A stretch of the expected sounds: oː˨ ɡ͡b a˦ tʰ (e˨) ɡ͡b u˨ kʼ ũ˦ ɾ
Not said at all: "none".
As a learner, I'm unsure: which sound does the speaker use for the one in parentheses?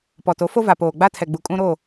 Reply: ɛ˨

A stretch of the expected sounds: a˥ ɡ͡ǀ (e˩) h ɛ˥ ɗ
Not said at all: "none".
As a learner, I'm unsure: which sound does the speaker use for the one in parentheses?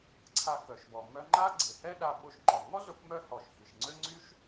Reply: e˩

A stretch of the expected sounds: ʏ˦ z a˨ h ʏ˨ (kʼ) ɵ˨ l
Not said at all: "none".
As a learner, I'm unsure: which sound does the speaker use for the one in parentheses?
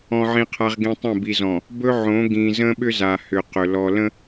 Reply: q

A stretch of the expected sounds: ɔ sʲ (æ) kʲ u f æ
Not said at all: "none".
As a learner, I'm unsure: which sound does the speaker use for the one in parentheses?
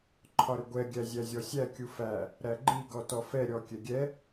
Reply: æ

